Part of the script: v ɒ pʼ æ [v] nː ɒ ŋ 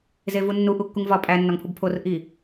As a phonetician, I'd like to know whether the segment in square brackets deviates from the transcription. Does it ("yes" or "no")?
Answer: yes